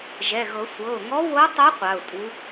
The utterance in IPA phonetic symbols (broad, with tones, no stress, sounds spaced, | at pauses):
ʒ ɛ˩˧˩ ɣ ɤ˨˩˦ sʷ ɤ˩˧˩ ʊ̯ ŋ ɔ˧˥ w o˧˥ tˤ o˧˥ qʷ a˩˧˩ ʊ̯ tʼ u˧˥